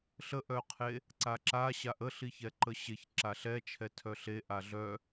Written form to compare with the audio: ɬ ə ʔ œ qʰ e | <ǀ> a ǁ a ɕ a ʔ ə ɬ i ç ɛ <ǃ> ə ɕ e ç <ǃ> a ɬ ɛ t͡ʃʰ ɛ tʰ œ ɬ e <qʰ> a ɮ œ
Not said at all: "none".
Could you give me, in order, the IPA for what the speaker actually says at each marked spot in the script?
ǀ, ǃ, ǁ, ʔ

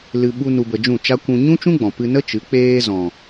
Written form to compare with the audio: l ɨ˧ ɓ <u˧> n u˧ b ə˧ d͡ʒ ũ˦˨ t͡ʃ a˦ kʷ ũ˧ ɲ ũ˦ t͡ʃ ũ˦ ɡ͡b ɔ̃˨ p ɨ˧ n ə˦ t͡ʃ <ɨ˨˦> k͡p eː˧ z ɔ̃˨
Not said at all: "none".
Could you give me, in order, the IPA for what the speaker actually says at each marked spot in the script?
u˧, ɨ˨˦

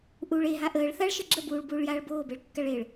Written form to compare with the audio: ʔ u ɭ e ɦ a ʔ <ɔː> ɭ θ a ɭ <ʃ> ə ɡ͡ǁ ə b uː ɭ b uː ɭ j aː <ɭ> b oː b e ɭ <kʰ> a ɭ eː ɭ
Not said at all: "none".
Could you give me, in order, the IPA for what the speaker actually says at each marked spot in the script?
əː, ʃ, ɭ, kː

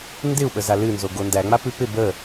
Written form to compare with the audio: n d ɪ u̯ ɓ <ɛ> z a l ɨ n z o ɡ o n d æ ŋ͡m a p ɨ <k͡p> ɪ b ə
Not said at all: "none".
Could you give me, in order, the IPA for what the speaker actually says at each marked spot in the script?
ə, p

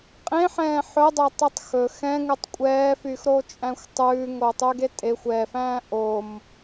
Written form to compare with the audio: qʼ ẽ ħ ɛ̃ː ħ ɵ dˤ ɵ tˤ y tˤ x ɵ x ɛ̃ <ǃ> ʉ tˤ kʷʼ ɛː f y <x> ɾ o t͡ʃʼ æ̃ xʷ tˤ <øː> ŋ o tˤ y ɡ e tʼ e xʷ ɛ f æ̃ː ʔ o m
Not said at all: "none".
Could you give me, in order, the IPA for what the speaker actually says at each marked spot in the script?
ŋ, x, ʉː

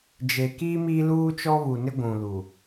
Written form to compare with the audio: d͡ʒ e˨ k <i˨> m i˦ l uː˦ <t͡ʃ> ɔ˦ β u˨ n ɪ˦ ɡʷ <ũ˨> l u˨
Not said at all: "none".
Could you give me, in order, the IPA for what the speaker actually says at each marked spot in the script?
i˦, t͡ʃ, ũ˨

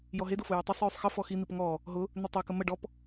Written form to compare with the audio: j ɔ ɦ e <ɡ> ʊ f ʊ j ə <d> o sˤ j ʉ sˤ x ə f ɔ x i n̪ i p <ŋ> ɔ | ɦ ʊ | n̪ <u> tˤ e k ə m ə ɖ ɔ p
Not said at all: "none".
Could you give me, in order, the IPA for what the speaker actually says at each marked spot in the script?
d, tˤ, ŋ, ʏ

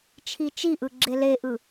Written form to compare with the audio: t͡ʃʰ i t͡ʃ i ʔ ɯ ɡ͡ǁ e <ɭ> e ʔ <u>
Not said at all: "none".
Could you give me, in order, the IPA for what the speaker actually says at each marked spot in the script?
l, ɯ

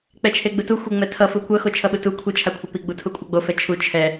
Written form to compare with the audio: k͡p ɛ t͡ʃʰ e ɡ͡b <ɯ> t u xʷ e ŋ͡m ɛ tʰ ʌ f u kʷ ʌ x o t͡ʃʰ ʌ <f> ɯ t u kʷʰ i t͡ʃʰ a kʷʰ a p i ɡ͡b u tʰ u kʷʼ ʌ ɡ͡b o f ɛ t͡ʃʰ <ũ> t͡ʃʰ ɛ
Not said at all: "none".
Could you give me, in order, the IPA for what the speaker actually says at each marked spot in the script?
ɯ, ɓ, u

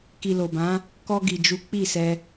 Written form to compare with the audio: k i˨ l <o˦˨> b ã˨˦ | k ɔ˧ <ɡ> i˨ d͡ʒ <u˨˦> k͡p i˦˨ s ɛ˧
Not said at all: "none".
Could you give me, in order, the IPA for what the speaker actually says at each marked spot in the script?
o˨, ɡ, u˨˦

